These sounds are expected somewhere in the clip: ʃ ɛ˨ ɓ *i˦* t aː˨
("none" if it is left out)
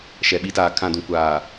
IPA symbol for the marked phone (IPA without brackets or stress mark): i˦